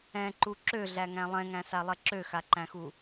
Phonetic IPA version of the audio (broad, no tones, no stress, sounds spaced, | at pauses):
ɛ̃ ǃ u ǁ ø ɮ æ ŋ æ̃ lˠ ɛ̃ ŋ æ̃ s a lˠ ɛ ǁ ø x a ǃ æ̃ x u